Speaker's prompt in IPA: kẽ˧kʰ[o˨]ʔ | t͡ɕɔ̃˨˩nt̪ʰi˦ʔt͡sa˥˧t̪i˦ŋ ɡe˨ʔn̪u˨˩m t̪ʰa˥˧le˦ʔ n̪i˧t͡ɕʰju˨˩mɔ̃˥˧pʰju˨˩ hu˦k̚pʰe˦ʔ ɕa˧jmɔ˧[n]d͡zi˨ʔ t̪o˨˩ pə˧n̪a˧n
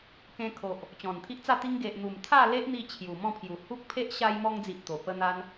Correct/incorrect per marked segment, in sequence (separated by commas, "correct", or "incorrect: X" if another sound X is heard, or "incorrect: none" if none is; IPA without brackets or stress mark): correct, incorrect: ŋ